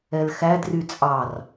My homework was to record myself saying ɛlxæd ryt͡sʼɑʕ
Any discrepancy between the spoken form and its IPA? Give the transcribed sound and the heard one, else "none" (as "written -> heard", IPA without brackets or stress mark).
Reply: ʕ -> r